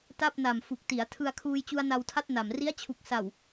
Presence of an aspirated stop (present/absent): present